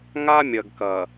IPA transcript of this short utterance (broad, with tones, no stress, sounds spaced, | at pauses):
ŋ a˦ mʲ ɐ˨ ɡ k ɐ˨